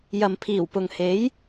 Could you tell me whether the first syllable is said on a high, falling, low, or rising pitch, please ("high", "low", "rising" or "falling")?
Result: low